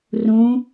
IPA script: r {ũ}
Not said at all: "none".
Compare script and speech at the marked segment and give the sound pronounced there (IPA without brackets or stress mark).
ũ